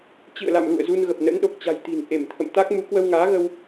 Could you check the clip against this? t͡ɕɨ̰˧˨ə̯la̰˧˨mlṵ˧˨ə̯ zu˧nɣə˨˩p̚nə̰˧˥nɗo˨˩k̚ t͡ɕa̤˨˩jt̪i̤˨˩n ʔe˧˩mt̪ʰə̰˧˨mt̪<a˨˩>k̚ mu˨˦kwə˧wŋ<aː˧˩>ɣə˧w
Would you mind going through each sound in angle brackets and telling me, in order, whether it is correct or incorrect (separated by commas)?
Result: incorrect, incorrect